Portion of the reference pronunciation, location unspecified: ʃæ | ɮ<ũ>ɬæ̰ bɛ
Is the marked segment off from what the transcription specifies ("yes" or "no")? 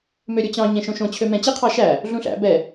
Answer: no